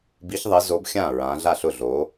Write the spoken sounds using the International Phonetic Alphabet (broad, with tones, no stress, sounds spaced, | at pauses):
b i˨˦ ç ðˤ ɪ˨˦ z o˨˦ b xʲ ã˥˩ ɹ ã˨˦ ɮ a˥˩ ɬ ʊ˥˩ ɮ o˨˦